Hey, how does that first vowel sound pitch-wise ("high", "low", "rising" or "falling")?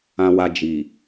low